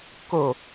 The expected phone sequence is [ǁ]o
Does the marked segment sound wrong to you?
yes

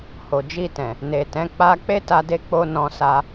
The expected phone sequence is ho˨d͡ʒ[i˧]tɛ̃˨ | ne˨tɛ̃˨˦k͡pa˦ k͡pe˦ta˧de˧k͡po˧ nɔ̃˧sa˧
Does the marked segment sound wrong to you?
no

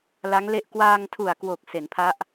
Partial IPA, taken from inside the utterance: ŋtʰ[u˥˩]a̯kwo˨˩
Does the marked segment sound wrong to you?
yes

